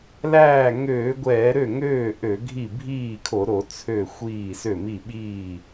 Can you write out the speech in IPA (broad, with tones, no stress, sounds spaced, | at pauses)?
l æː˥˩ ŋ øː˧˩˧ ɡʷ ɛː˧˩˧ ɾ ø˥˩ ŋ øː˥˩ ʔ ø˧˩˧ ɡʱ i˥˩ bʱ iː˥˩ kʰ o˧˩˧ ɾ o˧˩˧ t͡sʰ ø˥˩ xʷ iː˥˩ s ø˥˩ m i˥˩ ɓ iː˥˩